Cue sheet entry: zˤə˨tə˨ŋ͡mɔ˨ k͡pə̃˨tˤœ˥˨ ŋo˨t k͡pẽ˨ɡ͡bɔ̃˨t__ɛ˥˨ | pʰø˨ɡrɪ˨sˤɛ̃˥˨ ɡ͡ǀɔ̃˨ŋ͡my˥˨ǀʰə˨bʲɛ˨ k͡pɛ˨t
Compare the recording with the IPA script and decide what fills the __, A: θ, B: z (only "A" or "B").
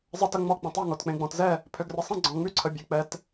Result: B